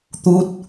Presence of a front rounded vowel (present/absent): absent